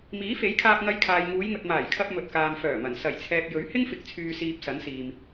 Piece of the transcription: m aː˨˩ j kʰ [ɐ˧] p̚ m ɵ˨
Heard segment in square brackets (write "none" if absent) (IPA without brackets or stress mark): ɐ˧